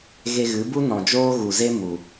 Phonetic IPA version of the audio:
ɣe˧ɣɨ˨˦bu˦ nɔ̃˨ d͡ʒoː˦ɣu˨ze˦ mu˨

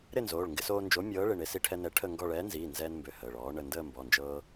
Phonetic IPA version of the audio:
ɾɪ˥˧nzoː˩˧˩ɭ ŋɡɪ˧soː˧nd͡ʒo˨˥mʲɤː˨˥ ɭɪ˩˧˩ɳe˧si˧ ʈʰɛ˧nɛ˨˥ ʈʰə˥˧ŋɡɔ˥˧ ɭɛː˨˥nziː˩˧˩nzɛː˧nmbø˩˧˩ həː˩˧˩ɭɔː˨˥ ɳə˩˧˩ndəː˥˧ mbɔ˩˧˩nd͡ʒɤː˧

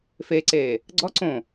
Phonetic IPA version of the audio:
feǀe | ɡ͡ǀɔ ǀõ

